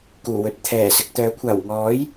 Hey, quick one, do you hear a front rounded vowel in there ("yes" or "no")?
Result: yes